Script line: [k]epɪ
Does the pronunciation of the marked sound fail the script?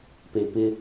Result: yes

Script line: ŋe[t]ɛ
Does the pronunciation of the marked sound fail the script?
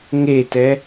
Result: no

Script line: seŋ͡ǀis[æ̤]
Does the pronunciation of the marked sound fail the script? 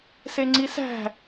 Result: no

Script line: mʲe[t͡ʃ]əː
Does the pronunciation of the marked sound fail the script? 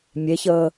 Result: yes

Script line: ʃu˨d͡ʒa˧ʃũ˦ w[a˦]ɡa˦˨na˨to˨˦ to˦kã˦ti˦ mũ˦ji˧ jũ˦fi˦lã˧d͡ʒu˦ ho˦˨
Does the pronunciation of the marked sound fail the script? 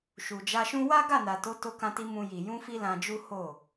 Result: no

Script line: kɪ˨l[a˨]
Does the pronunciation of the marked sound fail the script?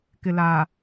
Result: yes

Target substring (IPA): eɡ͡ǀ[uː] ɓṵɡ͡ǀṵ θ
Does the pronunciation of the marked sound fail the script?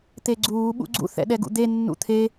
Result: no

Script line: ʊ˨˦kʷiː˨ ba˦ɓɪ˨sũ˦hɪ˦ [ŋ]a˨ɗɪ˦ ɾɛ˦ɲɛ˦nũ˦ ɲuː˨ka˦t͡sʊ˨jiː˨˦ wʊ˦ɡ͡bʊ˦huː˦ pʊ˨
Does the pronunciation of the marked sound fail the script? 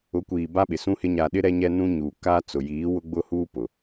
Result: yes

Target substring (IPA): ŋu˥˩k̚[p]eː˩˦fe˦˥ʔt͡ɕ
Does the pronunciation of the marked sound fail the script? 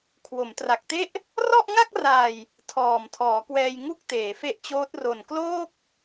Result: yes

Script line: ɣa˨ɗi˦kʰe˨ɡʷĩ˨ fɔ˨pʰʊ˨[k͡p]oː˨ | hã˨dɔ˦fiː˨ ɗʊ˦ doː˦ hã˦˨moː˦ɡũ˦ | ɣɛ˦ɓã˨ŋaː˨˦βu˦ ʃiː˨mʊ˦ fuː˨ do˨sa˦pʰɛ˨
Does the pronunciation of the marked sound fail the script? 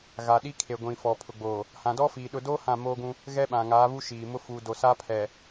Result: yes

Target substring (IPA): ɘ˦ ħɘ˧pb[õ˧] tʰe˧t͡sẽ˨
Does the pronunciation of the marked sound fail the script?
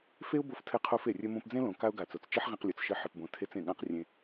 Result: no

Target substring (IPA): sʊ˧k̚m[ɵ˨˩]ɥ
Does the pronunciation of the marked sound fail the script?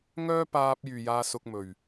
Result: no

